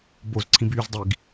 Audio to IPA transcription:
b o z ǀʰ ĩ b yː z dˤ i ɡ

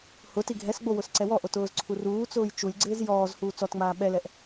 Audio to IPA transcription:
h ʊ t i ɡʱ ɛ s ɡ͡b o w ʊ s ǀ ɛ w ɔ ʔ o t ʊː z ǀʰ u r uː t͡s ʊː j t͡ʃ u lʲ ɡ͡ǀ ɪː z j ɔː z h uː t͡s ɔ t ŋ͡m aː ɓ ɛ l ɛ ʔ

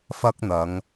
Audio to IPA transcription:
f ɐ˥ k̚ n̪ ɐ˨˧ ŋ

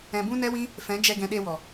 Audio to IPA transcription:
ɛ̃˧ b ũ˦ n ɛ˦ w ĩ˦ | f ɛ̃˨˦ d͡ʒ ɛ˧ ɡ ɛ̃˧ ɗ e˧ w ɔ˨

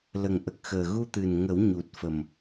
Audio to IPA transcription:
l ə˨˩ ŋ ʔ ə˨˩ k̚ x əː˨˩ ɣ u˧ t̪ ɨ˨˩ n ŋ ə˨˩˦ w ɲ u˨˩ t̚ f ə˨˩ m

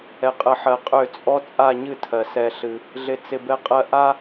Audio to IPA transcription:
ɛ˨ qʼ ə˨ ħ ɜ˨ qʼ ø˦˨ t͡sʼ ɔ˦ t͡sʼ a˦˨ ɲ ɨ˦˨ tʰ ɜ˨ s ɛ˦ ɬ ɨ˦ | ɮ ɪ˨ t͡s ɪ˨ b ɛ˦ qʼ ɜ˦ ʔ a˦

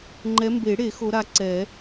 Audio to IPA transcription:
ŋ͡ǃ ɛ˨˦ m b e˨˩˦ ɽ e˨˩˦ x o˨˦ ɾ a˨˦ ǀ ɛ˨˩˦

